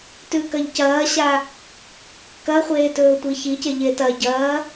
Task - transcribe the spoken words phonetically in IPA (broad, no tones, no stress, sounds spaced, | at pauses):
t ʉ k ɐ ʎ c ɐː ɕ a | k ɐ χʷ eː t ɵː tʷ i ç i c e ʎ e t ɐ ɟ ɐː